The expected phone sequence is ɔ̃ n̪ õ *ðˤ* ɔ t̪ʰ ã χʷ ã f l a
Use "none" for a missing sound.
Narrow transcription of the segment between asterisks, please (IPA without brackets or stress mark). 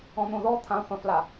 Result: ð